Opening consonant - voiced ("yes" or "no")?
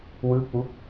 yes